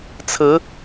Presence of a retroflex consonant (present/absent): absent